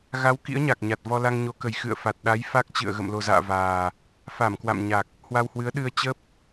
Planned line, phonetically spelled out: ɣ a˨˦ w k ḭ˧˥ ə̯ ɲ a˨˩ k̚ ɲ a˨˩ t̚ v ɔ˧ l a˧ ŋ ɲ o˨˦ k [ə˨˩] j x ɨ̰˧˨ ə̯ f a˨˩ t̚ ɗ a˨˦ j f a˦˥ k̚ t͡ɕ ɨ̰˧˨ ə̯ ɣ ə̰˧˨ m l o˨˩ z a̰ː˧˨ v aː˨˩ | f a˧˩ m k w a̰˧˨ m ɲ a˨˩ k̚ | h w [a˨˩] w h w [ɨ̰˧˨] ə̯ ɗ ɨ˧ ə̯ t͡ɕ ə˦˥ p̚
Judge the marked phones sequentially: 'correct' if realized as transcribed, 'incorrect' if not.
correct, incorrect, incorrect

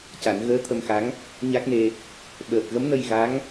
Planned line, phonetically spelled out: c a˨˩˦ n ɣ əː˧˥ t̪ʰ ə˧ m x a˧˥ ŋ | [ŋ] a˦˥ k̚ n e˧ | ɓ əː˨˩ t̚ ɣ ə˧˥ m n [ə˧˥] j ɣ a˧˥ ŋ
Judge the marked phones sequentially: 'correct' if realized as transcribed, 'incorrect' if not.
incorrect, incorrect

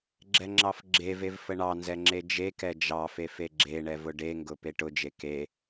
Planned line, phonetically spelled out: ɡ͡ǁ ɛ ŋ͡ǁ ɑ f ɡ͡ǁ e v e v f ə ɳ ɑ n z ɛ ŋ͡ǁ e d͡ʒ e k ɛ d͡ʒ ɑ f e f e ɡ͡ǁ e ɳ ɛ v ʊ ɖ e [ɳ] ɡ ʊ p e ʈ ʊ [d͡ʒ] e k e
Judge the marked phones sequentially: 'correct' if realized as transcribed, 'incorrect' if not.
incorrect, correct

